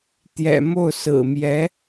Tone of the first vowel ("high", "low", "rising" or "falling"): low